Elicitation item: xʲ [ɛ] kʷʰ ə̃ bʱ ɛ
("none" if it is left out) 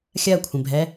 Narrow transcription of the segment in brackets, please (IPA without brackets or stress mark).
ɜ